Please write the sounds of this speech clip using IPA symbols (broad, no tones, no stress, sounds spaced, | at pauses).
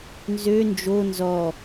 n z ø n d͡ʒ o n z ɔ